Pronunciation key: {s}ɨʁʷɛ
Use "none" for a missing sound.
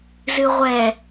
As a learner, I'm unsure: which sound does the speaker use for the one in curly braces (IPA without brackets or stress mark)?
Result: z